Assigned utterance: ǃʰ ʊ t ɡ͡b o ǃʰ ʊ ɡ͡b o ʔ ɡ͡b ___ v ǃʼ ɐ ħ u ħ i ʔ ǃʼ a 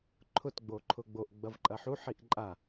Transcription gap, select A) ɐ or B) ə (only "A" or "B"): A